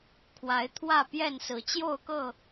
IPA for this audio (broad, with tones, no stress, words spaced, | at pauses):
kʰwa˨˦ɪ̯ t̪ʰwä˥˨pjɛ˥˨nsɹ̩˨˦ t͡ɕjo˥˨ʊ̯kɤ˥˨